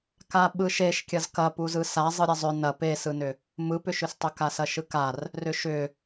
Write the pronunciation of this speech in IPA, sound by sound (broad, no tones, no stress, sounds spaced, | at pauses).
k a ɓ ɯ ʃ e ʃ kʲ ɐ z k ɐ p u z ɯ s a zˤ ɯ ɾʲ ɐ zˤ ʏ n ɐ p e s ɯ n ʏ | m ɯ p ʏ ʃ ʏ s tˤ ʏ k a s ɐ ʃ ɯ k a r | r ʏ ʃ ʏ